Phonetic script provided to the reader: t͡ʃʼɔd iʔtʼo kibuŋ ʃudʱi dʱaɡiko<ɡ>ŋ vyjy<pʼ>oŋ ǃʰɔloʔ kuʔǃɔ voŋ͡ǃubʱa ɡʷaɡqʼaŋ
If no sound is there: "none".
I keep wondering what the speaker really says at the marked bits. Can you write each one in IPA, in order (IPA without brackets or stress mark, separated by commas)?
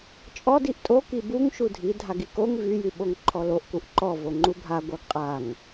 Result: none, ɓ